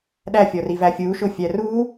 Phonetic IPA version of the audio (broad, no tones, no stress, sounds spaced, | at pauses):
ɗ æ fʲ ɔ r i v æ fʲ u ʃ ʊ fʲ æ r u